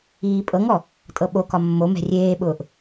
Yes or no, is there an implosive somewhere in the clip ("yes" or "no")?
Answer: yes